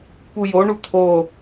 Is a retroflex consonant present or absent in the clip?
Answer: present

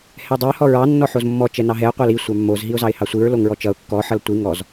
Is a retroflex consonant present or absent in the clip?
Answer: absent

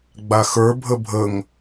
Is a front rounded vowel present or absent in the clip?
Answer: absent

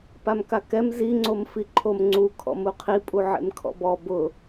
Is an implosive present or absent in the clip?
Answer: absent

